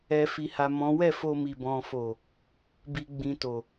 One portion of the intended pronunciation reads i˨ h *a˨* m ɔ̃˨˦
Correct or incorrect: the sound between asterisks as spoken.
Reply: correct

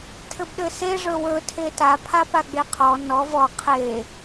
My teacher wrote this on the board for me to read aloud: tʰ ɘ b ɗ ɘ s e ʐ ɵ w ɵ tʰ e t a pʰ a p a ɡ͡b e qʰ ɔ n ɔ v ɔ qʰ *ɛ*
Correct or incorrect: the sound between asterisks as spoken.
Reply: incorrect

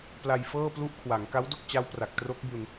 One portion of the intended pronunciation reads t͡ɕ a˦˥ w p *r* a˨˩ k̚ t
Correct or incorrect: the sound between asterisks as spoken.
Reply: correct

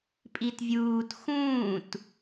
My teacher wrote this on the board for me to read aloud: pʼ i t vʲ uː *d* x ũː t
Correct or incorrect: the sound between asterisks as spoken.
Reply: incorrect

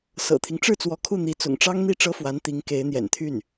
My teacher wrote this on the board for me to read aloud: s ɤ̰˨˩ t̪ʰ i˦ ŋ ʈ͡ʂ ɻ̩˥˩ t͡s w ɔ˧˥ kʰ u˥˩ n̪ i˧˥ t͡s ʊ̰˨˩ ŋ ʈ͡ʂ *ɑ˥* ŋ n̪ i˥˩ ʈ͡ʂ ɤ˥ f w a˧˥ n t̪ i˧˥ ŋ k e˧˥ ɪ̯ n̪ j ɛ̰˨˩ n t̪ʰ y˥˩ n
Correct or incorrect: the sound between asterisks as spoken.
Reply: correct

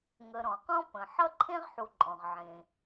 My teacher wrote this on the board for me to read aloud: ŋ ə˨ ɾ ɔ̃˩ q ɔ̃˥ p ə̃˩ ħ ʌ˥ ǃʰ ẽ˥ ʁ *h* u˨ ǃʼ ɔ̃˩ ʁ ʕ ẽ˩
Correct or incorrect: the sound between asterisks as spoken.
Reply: incorrect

